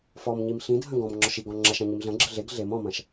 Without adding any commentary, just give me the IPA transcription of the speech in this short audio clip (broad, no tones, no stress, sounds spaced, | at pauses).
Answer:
f ɔ m ɲ i m ɬ ĩ dʱ ɐ̃ ɡ ɔ̃ m ŋ͡ǁ ɔ ʃ i ɡ ɔ̃ ŋ͡ǁ ɐ ʃ ɐ̃ ɲ i m ɮ ɐ̃ ɡ͡ǁ ɘ ɮ e ɡ ɮ e m ɔ̃ m ɐ̃ ʃ